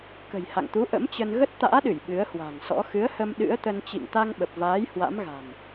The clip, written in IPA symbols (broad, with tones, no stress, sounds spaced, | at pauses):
k ə̤˨˩ j h a̰˧˨ ŋ t̪ u˨˦ ʔ ə̰˧˥ m t͡ɕ ə˧ n ɣ ə˦˥ t̚ t̪ a̰ː˧˥ ɗ ɨ˧˩ j ɓ ɨ˨˦ ə̯ h w a̤˨˩ ŋ s ɔ̰˧˥ x ɨ˨˦ ə̯ h ə˧ m ɗ ɨ̰˧˥ ə̯ t̪ ə˧ n t͡ɕ ḭ˧˨ ŋ t̪ a˧ ŋ ɓ ə˨˩ p̚ v aː˨˦ j h w a̰˧˥ m ɣ a̤˨˩ n